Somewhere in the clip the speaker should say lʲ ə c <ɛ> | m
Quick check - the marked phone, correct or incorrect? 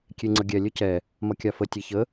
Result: correct